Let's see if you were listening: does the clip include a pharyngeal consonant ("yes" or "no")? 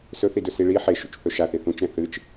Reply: yes